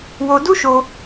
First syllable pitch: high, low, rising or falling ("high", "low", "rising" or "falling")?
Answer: high